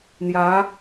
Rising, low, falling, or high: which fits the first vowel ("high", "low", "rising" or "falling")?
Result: rising